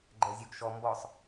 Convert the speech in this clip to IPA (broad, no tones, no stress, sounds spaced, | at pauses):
ɡ͡ǃ ɛ zʲ o ɡ ʃ ɔ m b ɔ sˤ